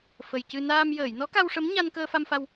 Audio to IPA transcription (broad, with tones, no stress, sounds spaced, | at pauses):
f ə˨˩ j c ɨ˧ n aː˧ m j əː˨˩˨ j n ɔ˧˥ k a˧ w ʂ ə˧˥ m ɲ a˧ n k əː˧ f a˧ m f a˧ w